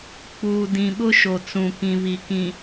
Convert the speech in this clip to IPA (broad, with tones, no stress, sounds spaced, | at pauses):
k͡p uː˨ d ĩ˨ ɓ ʊ˦ ʃ o˨ t͡s ũ˨ k ĩ˨ β i˨ k ĩ˨